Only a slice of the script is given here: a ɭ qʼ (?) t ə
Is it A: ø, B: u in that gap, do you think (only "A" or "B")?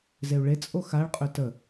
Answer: A